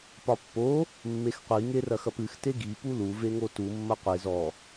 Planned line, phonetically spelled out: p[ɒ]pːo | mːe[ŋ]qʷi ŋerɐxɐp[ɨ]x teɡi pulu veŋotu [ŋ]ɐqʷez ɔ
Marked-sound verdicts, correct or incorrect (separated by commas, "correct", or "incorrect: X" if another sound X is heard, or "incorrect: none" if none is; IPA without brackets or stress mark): correct, incorrect: x, correct, incorrect: mː